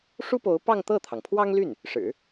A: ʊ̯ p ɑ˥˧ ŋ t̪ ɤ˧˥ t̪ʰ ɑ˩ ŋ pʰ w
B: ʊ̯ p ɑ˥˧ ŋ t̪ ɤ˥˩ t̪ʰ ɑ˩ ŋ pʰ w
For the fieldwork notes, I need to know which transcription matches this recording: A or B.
B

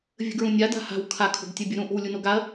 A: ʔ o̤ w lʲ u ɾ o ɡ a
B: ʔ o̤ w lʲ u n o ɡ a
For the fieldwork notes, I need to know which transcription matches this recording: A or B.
B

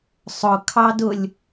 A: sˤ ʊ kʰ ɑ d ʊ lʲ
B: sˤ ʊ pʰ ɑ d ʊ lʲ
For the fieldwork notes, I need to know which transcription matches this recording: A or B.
A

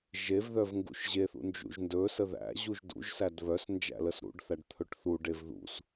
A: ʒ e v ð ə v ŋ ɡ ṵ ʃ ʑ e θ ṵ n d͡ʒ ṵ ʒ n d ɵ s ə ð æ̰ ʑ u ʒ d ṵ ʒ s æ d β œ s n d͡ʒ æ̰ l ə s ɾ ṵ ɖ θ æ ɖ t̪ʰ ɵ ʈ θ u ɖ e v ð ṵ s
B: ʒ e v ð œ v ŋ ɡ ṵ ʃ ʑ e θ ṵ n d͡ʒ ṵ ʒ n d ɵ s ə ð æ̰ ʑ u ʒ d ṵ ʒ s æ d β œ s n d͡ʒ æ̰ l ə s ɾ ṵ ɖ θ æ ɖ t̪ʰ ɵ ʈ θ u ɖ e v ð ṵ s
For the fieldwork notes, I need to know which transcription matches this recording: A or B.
B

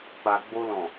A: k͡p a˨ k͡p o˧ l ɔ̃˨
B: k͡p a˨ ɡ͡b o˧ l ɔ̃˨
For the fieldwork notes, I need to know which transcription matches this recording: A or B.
B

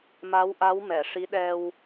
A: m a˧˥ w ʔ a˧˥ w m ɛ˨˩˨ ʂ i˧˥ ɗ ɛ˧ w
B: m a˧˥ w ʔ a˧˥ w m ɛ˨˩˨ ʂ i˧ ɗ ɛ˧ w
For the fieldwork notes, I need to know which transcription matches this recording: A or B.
A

